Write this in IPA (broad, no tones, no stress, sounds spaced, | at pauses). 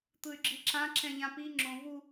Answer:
t̪ ɯ y̯ ɡ͡ǁ i ǁ ã ǁ ɛ̃ ʎ ã p i ŋ͡ǁ õ v u